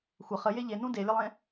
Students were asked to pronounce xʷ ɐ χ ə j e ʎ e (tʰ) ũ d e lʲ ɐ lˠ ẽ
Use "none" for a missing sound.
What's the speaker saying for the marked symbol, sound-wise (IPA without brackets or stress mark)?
n